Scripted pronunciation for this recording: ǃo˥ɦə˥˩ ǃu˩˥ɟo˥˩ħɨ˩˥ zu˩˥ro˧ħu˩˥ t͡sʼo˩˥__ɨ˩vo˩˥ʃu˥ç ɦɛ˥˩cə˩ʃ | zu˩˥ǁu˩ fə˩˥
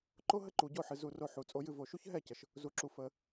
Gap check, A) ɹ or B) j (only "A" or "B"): B